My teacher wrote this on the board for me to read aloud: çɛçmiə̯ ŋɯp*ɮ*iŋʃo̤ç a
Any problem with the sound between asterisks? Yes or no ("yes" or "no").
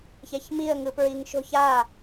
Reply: yes